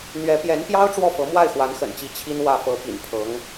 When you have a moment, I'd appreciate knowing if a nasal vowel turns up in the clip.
no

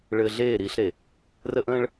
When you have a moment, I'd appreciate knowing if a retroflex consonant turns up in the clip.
yes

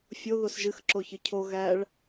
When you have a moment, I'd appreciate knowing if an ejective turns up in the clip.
no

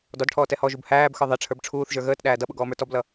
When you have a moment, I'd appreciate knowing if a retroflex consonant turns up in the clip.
yes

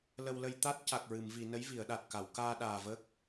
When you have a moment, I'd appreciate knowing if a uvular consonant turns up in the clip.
no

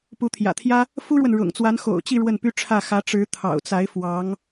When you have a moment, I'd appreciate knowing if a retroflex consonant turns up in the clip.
yes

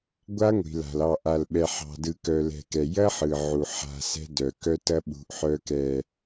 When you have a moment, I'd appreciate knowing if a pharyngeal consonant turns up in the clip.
yes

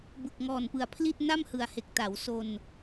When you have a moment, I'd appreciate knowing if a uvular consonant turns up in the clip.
no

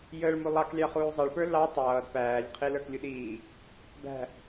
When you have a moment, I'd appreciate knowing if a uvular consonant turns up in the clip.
yes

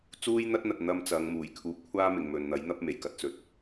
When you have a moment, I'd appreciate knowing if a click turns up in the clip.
no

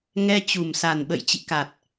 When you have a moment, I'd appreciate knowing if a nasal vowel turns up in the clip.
no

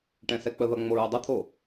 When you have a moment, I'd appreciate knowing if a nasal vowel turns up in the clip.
yes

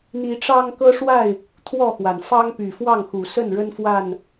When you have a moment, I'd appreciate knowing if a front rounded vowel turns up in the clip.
yes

